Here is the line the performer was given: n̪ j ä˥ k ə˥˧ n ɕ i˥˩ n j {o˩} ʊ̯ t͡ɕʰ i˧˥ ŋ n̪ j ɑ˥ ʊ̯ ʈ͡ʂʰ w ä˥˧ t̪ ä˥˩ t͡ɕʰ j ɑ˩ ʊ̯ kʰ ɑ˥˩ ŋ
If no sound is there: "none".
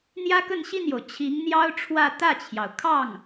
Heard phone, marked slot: o˩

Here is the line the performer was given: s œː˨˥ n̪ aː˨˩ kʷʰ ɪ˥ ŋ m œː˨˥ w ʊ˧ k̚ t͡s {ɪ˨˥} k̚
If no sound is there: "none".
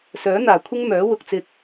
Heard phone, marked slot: ɪ˧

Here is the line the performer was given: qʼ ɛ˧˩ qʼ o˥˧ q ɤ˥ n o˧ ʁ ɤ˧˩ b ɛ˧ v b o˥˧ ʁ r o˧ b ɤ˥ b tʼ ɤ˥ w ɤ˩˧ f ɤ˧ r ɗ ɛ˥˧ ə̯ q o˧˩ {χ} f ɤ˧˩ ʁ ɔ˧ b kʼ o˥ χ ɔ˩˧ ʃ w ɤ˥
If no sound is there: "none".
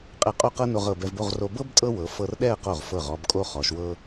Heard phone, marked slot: ʁ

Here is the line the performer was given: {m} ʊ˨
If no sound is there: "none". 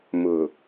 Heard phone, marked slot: m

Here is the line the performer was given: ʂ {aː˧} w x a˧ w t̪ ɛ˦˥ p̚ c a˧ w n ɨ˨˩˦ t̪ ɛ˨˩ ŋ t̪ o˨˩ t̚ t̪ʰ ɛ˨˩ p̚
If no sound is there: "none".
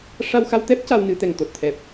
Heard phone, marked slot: a˧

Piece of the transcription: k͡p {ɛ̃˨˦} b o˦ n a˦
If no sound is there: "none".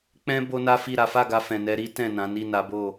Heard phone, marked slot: ɛ̃˦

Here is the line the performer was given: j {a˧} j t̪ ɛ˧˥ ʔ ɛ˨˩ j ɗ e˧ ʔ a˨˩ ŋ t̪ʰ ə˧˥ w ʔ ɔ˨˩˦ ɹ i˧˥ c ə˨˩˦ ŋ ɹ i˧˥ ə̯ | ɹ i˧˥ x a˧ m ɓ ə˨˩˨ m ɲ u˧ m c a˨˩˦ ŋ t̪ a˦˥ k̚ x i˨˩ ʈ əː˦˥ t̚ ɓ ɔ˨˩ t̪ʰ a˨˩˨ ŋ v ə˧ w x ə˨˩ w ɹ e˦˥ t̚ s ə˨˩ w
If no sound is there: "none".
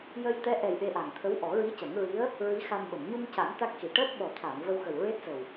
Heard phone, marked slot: ə˧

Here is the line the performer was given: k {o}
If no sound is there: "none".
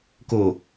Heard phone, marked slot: o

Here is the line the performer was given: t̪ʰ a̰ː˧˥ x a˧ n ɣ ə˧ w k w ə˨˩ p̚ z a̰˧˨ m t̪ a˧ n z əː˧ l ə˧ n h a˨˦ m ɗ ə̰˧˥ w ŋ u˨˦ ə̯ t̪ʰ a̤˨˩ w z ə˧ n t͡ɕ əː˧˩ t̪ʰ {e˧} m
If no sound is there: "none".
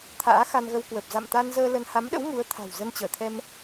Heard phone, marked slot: ɛ˧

